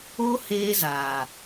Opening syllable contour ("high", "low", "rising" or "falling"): high